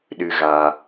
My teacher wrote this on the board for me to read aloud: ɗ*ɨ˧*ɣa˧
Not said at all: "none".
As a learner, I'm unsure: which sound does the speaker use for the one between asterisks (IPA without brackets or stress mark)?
ɨ˧